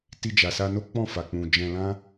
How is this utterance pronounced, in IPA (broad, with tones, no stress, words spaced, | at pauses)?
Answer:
ti˧d͡ʒa˨sa˧no˦ k͡pɔ̃˦˨fa˨k͡pũ˨ d͡ʒɛ̃˧lã˦